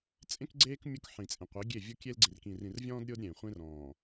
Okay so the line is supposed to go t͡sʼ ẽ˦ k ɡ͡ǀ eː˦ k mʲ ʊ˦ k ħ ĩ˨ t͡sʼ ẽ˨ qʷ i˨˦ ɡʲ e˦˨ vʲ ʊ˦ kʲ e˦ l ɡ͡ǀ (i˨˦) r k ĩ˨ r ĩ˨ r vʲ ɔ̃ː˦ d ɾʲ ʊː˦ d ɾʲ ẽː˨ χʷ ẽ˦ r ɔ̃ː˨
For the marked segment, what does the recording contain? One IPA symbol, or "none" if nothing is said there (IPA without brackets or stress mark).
i˨